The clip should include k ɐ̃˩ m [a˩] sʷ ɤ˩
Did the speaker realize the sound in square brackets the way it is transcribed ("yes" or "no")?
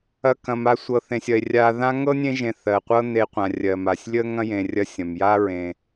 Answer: no